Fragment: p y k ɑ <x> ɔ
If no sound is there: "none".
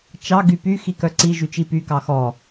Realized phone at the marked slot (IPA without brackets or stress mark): x